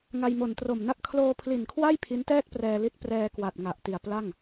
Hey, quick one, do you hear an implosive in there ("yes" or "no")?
no